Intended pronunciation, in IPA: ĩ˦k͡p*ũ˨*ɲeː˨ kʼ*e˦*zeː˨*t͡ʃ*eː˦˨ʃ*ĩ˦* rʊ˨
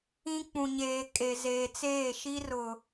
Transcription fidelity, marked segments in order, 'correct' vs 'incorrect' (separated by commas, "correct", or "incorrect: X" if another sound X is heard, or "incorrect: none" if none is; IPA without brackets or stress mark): correct, incorrect: e˨, incorrect: t͡s, incorrect: i˦